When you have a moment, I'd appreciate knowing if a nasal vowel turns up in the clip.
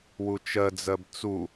no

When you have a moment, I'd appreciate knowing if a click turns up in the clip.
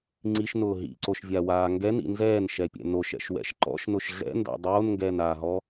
yes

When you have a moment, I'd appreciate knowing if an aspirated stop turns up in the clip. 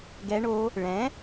no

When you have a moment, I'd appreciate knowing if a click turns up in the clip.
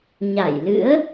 no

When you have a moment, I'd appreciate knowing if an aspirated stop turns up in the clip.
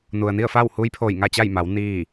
yes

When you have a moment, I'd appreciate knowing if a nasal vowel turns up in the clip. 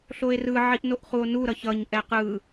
no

